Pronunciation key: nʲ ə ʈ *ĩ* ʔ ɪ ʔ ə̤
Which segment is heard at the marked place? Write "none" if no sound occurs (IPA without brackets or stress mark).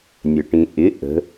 ĩ